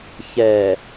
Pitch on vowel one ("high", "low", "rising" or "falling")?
low